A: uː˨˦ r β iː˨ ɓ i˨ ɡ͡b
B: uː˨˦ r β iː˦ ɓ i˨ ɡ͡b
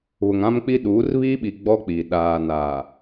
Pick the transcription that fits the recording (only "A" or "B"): B